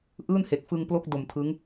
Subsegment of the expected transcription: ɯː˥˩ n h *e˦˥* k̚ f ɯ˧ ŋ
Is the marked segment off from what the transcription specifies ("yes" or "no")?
yes